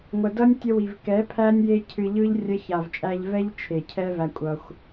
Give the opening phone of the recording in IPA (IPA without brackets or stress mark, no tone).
ŋʷ